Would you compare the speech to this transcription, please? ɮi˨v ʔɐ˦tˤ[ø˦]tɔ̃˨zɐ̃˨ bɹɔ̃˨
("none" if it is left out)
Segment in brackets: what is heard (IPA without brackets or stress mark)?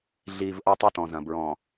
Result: ɛ˦